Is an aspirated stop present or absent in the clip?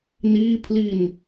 present